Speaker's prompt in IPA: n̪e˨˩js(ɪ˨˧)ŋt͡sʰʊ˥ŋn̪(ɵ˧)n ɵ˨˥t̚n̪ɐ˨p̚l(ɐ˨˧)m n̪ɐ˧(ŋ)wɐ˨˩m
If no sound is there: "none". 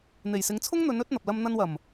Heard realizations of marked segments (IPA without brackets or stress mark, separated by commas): ɪ˨˧, ɵ˨˧, ɐ˧, n